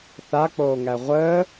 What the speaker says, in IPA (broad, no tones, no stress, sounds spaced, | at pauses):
θ a k͡p oː ŋ æ ʁʷ əː